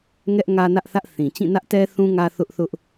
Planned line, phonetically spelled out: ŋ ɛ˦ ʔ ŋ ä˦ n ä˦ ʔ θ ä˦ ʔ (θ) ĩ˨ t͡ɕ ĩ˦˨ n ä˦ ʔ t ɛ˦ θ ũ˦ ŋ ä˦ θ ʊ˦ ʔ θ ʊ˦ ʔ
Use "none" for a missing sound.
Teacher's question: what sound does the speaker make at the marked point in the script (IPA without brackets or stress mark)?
θ